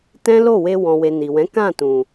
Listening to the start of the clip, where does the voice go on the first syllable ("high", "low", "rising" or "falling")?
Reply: high